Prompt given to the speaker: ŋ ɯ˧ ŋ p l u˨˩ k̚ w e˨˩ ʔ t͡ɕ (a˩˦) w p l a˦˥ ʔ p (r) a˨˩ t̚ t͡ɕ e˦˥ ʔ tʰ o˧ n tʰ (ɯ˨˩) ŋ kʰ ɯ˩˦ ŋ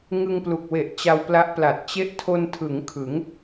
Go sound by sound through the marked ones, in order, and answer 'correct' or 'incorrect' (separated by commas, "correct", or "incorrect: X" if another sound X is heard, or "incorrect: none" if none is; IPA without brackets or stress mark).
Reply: incorrect: a˧, incorrect: l, incorrect: ɯ˩˦